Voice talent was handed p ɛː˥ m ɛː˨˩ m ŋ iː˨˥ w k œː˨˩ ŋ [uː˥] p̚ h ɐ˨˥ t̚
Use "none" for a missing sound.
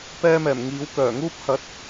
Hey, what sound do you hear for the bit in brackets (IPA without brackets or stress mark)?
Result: uː˥